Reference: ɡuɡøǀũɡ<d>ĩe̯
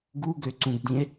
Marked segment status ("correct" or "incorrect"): correct